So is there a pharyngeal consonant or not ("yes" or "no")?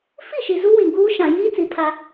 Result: no